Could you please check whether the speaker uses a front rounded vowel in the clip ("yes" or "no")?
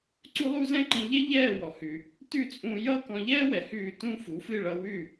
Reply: no